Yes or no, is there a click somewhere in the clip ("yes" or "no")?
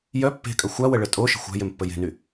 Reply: no